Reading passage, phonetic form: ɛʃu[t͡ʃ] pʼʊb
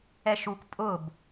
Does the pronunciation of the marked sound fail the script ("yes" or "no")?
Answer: yes